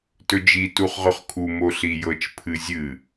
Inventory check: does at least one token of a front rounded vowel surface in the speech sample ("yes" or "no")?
no